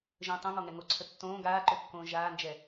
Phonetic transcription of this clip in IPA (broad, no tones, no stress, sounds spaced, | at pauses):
ʒ ə̃ː tˤ õ ŋ ɔ ŋ ɛ ŋ o ǀʰ ə tː õː ɡ aː ǃ ø kː õː ʒ aː n d͡ʒ ɛ